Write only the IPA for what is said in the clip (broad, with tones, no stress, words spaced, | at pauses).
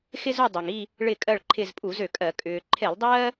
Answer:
xɪ˦zu˦˨ dˤø˩ŋi˦˨ | ɭɪ˦˨kʼɜ˦˨ɭǃʰɪ˦˨zpʼu˧˩˧z ø˩kʼɜ˧˩˧ kʼʏː˩ ǃʰe˧˩˧lˠdˤɜː˦